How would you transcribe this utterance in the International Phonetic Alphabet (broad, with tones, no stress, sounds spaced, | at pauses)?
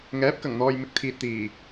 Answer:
ŋ ɛː˨˥ p̚ k ɐ˨˩ ŋ n̪ ɔː˨ j m ɪ˨˥ k̚ t̪ʰ iː˨ t̚ t̪ iː˨˩